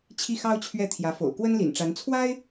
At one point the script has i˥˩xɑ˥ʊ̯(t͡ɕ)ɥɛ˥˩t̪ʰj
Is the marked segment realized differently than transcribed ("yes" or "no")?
yes